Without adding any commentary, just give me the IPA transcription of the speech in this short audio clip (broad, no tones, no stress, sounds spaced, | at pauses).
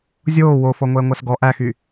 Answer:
zʲ oː w o f ɔ ŋʷ ɛː ŋʷ æ s ɡ ɔ ʔ æ x y